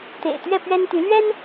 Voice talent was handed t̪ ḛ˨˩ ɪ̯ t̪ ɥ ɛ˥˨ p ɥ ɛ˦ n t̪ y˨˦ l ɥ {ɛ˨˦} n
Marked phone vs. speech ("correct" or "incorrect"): incorrect